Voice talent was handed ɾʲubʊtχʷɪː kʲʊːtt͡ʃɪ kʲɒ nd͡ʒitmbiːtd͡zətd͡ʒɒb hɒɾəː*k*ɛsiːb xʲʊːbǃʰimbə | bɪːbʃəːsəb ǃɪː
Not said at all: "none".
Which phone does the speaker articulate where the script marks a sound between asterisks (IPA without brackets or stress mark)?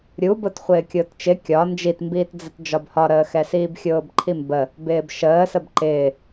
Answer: x